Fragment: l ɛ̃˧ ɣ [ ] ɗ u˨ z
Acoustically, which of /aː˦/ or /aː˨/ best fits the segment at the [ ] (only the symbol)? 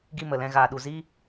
aː˨